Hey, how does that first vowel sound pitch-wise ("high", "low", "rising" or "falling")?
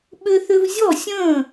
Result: high